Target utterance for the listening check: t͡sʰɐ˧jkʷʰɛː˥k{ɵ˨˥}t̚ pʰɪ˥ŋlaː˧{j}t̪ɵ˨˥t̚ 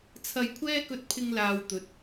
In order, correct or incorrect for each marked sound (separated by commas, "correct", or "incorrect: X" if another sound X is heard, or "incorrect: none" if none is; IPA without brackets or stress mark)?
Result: incorrect: ɵ˧, incorrect: w